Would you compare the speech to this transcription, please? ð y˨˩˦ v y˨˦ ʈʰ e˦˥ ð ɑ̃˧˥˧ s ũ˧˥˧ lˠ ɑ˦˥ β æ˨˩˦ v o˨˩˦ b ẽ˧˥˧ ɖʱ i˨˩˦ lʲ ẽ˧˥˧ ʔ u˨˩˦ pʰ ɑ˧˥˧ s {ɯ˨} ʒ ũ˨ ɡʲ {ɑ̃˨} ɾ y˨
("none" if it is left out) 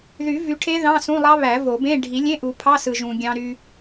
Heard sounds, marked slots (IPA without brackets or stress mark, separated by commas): ɯ˨, ɑ̃˨